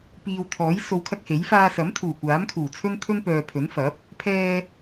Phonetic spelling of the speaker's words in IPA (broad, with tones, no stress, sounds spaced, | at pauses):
p iː˨ w t̪ʰ ɔː˨˥ j s o˨˧ w kʰ ɐ˧ k̚ h e˨˥ j f aː˧ s ɐ˨˥ m t̪ʰ uː˨˩ kʷ aː˨˥ m kʰ uː˨˩ t͡sʰ ɵ˥ n t̪ʰ ɵ˥ n p œː˨ pʰ ɵ˨˥ n f ɐ˨˥ p̚ | pʰ ɛː˧